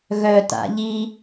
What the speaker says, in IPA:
ɣ œ t a̰ ʎ i

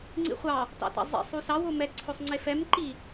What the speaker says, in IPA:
ŋ͡ǀ ḭ χʷ ɑ | t ɑ̰ t ɑ̰ zˤ ḭ sˤ u s ɑ w o m ɛ ǀʰ o sˤ ŋ͡ǀ e f ɛ m ǃ i

